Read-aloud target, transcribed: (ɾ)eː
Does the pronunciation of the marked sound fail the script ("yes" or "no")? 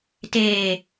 yes